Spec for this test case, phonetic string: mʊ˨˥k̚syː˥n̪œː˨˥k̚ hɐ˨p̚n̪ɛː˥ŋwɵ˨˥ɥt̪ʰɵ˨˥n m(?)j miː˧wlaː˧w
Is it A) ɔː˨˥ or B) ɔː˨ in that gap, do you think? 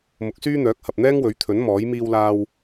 A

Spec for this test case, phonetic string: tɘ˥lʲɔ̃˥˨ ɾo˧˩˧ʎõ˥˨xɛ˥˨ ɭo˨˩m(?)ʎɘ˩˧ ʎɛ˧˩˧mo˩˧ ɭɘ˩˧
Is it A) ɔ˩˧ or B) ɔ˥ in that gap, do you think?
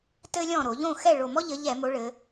B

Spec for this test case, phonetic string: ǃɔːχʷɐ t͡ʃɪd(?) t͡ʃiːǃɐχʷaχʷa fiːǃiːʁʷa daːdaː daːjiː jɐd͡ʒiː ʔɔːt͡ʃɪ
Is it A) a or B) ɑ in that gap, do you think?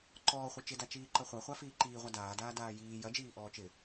A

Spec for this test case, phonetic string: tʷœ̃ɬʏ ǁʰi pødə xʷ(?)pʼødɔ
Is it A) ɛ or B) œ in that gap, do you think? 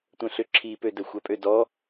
B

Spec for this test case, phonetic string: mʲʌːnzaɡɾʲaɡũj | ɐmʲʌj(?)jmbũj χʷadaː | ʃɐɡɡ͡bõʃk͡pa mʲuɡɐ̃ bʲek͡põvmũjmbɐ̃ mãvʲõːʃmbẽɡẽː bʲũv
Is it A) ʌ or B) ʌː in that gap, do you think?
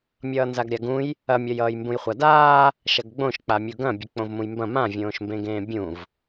B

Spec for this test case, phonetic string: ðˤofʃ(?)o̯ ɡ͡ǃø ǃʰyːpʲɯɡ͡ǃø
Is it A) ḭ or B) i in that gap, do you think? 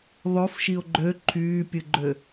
B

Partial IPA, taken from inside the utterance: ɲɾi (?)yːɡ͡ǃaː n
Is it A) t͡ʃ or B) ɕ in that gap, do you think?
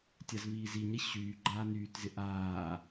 B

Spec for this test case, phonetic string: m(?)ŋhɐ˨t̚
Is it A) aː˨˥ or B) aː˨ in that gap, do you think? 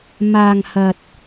B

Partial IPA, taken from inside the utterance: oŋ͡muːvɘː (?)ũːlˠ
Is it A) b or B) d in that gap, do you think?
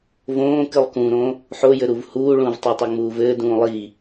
B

